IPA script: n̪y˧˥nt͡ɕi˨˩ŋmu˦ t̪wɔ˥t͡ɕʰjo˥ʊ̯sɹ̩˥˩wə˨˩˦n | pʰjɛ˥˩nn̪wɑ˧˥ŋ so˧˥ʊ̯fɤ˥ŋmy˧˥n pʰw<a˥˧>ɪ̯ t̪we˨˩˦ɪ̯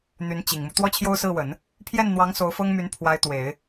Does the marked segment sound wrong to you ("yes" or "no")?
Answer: yes